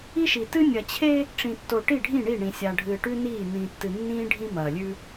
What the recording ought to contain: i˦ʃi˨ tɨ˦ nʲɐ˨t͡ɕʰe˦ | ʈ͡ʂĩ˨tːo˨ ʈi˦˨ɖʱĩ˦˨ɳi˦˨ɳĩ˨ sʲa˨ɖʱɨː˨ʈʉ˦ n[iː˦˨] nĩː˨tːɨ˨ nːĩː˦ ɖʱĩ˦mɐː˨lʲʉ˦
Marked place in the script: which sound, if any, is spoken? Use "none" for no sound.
iː˦˨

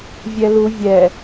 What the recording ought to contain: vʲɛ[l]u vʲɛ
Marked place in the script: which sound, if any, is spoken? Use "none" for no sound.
l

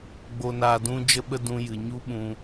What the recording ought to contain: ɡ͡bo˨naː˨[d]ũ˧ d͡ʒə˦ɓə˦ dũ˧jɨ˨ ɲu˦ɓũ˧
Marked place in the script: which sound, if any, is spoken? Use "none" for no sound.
d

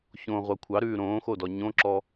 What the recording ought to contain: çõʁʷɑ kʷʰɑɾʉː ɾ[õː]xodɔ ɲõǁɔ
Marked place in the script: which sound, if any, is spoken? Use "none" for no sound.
õː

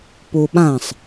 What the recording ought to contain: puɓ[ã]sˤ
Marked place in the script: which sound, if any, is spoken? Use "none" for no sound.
ã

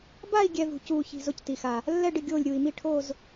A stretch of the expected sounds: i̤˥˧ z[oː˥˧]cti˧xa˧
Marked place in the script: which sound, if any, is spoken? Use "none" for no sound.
o˥˧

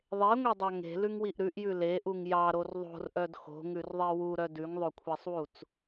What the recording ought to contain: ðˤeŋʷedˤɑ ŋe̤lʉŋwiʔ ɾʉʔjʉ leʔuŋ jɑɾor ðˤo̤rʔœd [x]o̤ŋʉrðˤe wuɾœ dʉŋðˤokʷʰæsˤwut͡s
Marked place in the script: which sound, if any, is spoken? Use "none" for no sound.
x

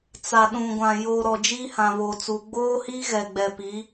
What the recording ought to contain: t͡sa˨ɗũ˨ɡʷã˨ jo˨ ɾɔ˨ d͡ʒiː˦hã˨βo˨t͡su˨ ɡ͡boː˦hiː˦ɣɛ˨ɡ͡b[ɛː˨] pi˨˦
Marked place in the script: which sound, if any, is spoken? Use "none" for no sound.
ɛ˨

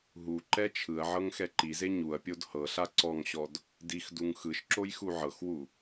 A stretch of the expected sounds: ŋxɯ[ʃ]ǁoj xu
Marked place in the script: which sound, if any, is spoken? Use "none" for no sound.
ʃ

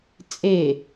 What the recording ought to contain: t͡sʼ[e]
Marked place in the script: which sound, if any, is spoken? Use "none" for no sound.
e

